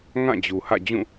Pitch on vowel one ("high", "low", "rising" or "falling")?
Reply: falling